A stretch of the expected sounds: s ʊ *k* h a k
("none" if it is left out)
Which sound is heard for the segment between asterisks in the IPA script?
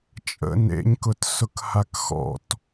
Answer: k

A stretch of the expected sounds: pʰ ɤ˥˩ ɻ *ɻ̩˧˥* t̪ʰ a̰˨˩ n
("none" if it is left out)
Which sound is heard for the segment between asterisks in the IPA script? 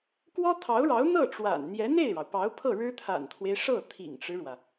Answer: ɻ̩˥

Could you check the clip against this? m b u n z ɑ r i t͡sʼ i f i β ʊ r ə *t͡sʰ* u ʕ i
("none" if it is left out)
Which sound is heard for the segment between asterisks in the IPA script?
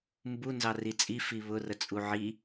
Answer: t͡sʼ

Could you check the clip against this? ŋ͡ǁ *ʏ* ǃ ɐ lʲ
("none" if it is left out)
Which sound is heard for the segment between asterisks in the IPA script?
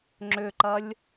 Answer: ʏ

